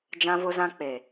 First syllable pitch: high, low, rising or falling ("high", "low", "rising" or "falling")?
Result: high